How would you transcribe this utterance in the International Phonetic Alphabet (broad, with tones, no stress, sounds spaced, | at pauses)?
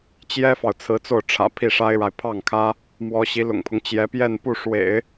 t͡ɕ j ɛ˥ f ɑ˨ ʊ̯ t͡sʰ ɹ̩˧˥ t͡s o˥˩ ʊ̯ ʈ͡ʂʰ ä̰˨˩ pʰ i˥˩ ʂ a˥ ɪ̯ ɻ a˨ ɪ̯ pʰ ɑ˥˩ ŋ kʰ ä˥ | m w ɔ˧˥ ɕ i˧˥ l ʊ̰˨˩ ŋ pʰ ʊ˦ ŋ t͡ɕ j ɛ˧˥ p j ɛ˥˧ n p u˥˩ ʂ w ḛ˨˩˦ ɪ̯